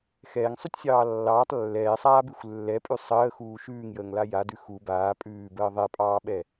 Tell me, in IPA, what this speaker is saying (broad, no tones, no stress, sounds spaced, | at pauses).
x ɛː ŋ sˤ ʉ tʲ sʲ ɑː lː ɑː tˤ lː ɛː sˤ aː b ʉ xʷ lː ɛ pʼ ʉ sˤ əː x uː ʃ ʉː ŋ j əː ŋ l a j a d ʉ x u b aː pʼ ʉː b əː ðˤ ɛ pʼ ɑː ɓ ɛ